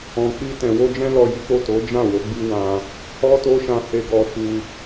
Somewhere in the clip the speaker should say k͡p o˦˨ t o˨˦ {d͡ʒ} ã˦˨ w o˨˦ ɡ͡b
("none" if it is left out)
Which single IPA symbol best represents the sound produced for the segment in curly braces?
d͡ʒ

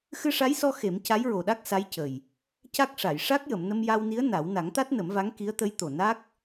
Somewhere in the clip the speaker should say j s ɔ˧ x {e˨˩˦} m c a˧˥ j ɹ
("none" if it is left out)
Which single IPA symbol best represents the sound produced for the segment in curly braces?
e˨˩˦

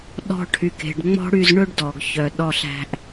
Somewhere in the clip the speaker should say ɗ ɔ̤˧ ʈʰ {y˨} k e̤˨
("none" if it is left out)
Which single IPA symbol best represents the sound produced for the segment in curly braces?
y˨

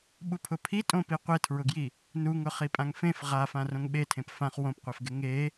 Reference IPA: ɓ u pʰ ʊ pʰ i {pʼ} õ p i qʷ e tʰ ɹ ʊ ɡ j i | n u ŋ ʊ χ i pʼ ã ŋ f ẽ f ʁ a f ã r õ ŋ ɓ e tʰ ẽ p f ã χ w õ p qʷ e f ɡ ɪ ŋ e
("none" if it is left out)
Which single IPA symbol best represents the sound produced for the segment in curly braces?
tʼ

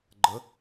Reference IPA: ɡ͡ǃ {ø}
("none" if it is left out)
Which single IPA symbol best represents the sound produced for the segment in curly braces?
ə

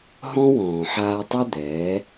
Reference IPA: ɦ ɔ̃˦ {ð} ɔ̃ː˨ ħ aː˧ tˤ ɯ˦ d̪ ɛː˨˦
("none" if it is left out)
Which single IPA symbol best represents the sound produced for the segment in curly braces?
w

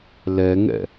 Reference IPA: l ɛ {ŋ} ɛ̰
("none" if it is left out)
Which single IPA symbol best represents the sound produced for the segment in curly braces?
ŋ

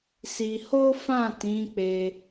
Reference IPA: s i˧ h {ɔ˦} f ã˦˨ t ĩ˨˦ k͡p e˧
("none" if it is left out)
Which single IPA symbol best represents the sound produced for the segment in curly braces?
o˦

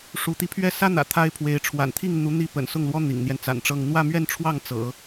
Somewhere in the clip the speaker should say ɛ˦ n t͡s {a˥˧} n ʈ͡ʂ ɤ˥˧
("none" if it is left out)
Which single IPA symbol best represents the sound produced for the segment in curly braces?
a̰˨˩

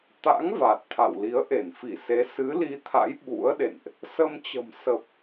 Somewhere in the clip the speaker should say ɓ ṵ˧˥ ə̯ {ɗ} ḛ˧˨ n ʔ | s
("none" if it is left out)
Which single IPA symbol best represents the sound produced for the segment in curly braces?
ɗ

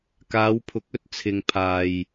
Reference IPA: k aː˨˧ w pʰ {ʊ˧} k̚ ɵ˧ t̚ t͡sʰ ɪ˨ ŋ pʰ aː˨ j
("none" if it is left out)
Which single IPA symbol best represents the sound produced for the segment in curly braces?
ʊ˨˥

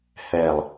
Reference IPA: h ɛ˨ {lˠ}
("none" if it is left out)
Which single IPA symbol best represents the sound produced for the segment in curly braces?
lˠ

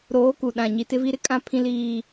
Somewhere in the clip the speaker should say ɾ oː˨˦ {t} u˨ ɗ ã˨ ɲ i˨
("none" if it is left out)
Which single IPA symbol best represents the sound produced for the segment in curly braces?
k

